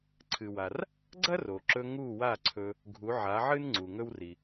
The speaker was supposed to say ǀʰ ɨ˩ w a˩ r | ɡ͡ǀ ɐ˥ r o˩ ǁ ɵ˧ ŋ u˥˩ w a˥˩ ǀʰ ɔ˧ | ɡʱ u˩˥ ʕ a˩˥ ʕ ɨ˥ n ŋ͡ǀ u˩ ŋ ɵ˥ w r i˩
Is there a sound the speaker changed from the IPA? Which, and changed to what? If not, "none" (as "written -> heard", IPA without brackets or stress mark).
ɔ˧ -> ɵ˧